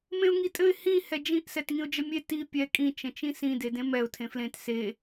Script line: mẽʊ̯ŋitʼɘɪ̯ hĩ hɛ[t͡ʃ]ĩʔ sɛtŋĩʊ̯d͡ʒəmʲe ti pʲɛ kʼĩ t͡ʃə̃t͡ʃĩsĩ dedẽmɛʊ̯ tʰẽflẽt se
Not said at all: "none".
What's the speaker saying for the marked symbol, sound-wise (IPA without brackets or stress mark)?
d͡ʒ